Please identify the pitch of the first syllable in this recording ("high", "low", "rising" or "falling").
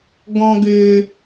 high